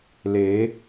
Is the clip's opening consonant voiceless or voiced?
voiced